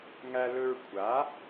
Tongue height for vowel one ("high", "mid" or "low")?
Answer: low